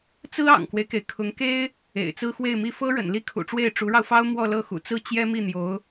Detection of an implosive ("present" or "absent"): absent